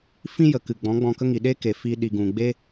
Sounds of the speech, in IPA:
fĩ˦jə˨ kɨ˨ɡ͡bɔ̃˨˦ ɡ͡bɔ̃˧kə˦ŋi˨ ɗe˦ke˨ fi˧ ɗi˨ɡũ˨ɡ͡be˦

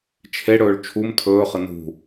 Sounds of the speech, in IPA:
t͡ʃʰeɽɵːɭ t͡ʃʰum tʰɵːχə nṳ

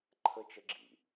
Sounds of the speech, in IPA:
ǃʰət͡ʃəɡ͡ǁḭ

